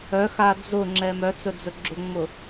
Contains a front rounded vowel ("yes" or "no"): yes